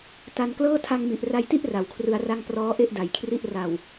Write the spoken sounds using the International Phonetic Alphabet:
ta˧n klɤː˥˩ tʰa˧ŋmi˨˩ʔra˧jti˥˩ʔ ra˨˩wkʰrɯ˧a̯ra˥˩ŋ prɔː˦˥ʔe˥˩ʔda˩˦jkʰri˥˩ʔ ra˨˩w

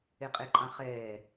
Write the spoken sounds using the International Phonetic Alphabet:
eqʼeǃʼɑ̃χɛː

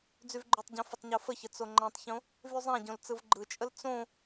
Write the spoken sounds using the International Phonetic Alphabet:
d͡zyvɡ͡ǃytˤɟõ fətˤɲofəçə t͡soŋ͡ǃæ̃tˤçõ | vyzˤæ̃ɟõl t͡sɯvɡ͡ǃɯt͡ʃʼəl t͡sõ

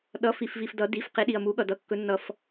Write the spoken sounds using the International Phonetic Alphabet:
ɗʌ˩˧˩fi˩fvi˩f dʌ˩˧ di˩˧˩fqi˩˧ɗi˩ɐ̯ mu˩˧ɠʌ˩ dʌ˩˧˩kːɵ˩˧nːʌ˩f

